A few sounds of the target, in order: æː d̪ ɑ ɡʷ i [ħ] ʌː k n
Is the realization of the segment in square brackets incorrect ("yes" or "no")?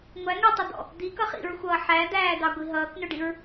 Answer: yes